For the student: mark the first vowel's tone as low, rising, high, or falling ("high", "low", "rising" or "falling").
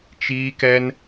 high